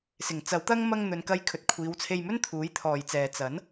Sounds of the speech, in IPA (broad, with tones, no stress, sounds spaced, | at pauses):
s ɪ˨˩ ŋ t͡s ɐ˨˥ w t̪ ɐ˥ ŋ m ɐ˧ ŋ n̪ ɵ˨ n k ɐ˧ j kʰ ɵ˨ t̚ kʷʰ iː˨˧ w t͡sʰ e˧ j m ɵ˥ n t̪ʰ uː˨˥ j t̪ʰ ɔː˨ j t͡s ɛː˨ t͡s ɐ˨˥ n